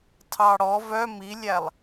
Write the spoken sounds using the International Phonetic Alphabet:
tʰ ɑ ɽ ɔ v œ m i lʲ æ lˠ

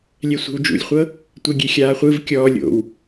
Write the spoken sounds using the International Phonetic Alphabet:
lʲ ɛ sʷ e̤ w d͡ʒ ṵ lʲ χʷ ɤ | tʷ e ɡʲ e xʲ aː χʷ ɯ v kʲ ɔː lʲ o̰ w

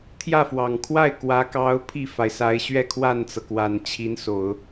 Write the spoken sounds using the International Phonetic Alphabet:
t̪ʰ j ä˥˩ f w ɑ˨˩ ŋ kʰ w a˥˩ ɪ̯ k w ä˧˥ k ɑ˧˥ ʊ̯ pʰ i˥˩ f a˩ ɪ̯ s a˧˥ ɪ̯ ɕ ɥ ɛ˥˧ kʰ w a˥˩ n t͡s ɤ˩ k w a˨˩ n t͡ɕʰ i˧˥ n s o˨˩˦ ʊ̯

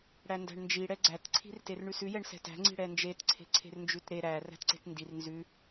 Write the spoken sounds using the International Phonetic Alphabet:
ɽ æ n d æ̤ ɳ n d͡ʒ i ɽ ɛ ɡ͡ǀ æ t ǀʰ i̤ r t e r ɳ ʉ s ʉ j ɛ ɳ s ɛ̤ t æ̤ ŋ͡ǀ i̤ ɽ ɛ n d͡ʒ e t ǀʰ e̤ ǀʰ e̤ r n d͡ʒ ʉ t ɾ e ɾ æ r æ̤ t ǀ e̤ t n d i r n z ʉ

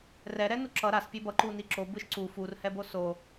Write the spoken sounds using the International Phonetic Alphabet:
r ɛ ɾ ɛ n u ǁ ʌ ɾ a s pʲ e b ʌ ǃ u n i ǁ o b ɯ ʃ ǀ u f u r h ɛ b o s o

